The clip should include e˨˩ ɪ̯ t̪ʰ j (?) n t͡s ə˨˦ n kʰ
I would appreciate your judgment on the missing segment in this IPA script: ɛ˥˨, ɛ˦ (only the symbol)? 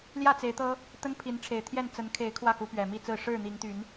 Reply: ɛ˥˨